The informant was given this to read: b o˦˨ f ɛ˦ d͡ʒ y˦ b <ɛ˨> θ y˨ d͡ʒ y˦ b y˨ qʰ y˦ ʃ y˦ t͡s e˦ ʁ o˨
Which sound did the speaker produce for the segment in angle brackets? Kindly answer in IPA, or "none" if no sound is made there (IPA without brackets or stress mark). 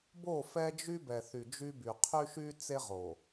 ɛ˨